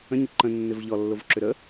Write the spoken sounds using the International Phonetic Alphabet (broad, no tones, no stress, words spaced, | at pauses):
ə̃ɲɪ ǃə̃ nːɪvʎɔ lːovǁʏɾə